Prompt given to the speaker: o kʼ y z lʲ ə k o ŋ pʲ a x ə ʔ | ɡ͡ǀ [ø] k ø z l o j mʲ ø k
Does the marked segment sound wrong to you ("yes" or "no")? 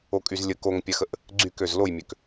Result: yes